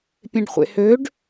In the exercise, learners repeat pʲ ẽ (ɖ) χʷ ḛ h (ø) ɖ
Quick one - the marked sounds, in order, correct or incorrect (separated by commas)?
correct, correct